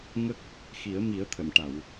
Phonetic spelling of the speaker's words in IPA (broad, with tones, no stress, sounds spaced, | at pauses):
ŋ ə˦˥ k̚ | x i˨˩˦ ə̯ m i˨˩˦ ə̯ t̪ʰ ə˨˩˨ m ʈ a˨˩˨ w